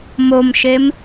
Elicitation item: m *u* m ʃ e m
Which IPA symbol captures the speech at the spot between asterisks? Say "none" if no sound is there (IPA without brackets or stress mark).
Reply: o